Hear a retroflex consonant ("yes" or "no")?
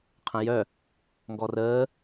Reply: no